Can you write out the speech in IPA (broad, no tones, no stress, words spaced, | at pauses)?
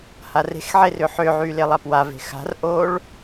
hare̤xʕe rʏħʏʕy lelˠapwave̤ xa̤rʔoɭ